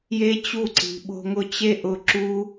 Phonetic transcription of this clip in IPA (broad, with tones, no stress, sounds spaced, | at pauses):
j e˦ t͡ɕ u˦˨ ǀ i̤˨ ɓ o̤˧ ŋ ʊ˧ t͡ɕ e˦ ʔ ʊ˧ ǁ u˦